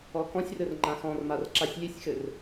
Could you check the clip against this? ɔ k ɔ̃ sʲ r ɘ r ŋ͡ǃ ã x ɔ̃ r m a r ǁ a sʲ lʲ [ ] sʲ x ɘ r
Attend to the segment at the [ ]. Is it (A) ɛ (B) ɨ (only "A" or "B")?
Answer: B